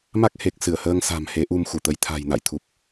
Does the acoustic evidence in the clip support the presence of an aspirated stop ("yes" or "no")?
yes